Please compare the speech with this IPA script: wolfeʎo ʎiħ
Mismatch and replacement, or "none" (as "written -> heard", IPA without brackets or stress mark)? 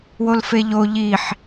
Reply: none